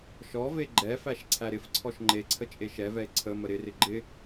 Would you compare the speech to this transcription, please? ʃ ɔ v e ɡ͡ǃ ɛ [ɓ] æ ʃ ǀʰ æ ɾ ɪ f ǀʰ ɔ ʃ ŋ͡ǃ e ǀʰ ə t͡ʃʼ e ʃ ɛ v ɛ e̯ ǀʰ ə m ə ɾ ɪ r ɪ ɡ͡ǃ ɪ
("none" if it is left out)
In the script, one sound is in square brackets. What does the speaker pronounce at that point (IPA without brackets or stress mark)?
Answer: f